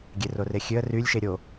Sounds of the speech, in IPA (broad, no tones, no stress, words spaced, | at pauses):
ɡʲerorexʲøə̯ rylʲʃe ɾʲo